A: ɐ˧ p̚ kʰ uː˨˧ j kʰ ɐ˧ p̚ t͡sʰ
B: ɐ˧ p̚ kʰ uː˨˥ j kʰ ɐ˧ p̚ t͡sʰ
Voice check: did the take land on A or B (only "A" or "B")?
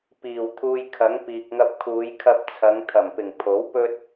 A